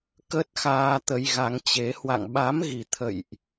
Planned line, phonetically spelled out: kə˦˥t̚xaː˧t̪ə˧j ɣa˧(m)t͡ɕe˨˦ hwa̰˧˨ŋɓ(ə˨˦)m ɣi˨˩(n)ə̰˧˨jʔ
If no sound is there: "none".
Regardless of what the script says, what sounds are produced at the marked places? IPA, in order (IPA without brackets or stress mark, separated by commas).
ŋ, a˨˦, t̪ʰ